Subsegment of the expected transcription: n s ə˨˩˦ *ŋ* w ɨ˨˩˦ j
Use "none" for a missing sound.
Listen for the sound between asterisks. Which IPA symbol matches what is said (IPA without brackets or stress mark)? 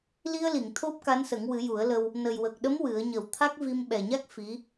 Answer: ŋ